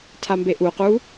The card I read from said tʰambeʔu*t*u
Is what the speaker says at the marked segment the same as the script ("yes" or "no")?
no